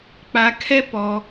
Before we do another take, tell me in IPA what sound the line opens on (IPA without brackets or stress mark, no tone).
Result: k͡p